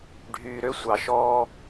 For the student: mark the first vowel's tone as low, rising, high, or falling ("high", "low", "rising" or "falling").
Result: low